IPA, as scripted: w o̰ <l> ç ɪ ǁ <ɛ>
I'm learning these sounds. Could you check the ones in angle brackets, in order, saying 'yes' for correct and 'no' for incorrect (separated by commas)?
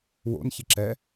no, yes